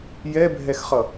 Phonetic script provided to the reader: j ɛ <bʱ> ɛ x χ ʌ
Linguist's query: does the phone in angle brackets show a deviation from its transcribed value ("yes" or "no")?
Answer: no